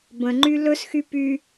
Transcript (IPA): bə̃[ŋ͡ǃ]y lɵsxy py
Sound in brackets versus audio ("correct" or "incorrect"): correct